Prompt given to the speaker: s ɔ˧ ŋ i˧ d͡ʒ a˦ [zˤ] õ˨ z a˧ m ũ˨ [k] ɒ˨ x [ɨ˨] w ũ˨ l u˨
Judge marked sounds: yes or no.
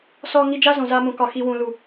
no, yes, no

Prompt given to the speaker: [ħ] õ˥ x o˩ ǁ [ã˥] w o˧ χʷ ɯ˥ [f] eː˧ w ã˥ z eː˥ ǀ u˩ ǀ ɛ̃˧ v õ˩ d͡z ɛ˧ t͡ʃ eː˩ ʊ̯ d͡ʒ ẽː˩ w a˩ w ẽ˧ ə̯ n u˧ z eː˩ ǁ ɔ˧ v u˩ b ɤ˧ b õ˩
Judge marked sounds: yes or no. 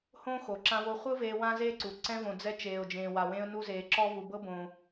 no, no, no

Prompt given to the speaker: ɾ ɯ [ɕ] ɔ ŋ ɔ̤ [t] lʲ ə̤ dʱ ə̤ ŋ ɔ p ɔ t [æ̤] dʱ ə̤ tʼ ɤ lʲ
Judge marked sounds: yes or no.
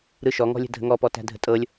no, no, yes

